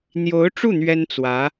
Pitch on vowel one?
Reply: rising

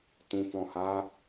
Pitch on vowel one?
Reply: low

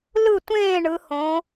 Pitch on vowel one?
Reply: falling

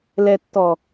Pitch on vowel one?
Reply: low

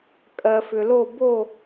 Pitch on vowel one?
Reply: low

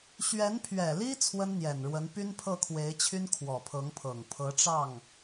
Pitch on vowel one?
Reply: rising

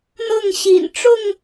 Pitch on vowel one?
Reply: falling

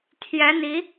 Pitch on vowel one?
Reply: rising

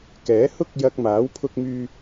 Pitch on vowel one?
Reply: rising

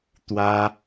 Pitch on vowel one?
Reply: high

